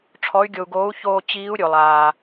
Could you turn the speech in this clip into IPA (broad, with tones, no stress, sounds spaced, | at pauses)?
ʈ͡ʂʰ ɔ˧˥ y̯ ɡʲ o˧ u̯ ɡ oː˧˥ u̯ ç oː˧ t͡ɕ iː˧˥ u̯ ɾʲ o˧ lˠ aː˧